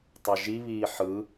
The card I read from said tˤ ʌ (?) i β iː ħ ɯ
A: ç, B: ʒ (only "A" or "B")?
B